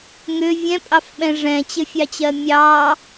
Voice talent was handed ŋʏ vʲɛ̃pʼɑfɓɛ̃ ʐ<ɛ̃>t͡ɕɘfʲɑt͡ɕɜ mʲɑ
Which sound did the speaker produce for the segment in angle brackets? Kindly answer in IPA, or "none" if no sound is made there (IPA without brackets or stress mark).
ɛ̃